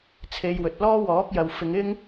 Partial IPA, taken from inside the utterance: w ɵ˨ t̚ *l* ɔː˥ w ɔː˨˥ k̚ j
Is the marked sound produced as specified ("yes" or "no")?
yes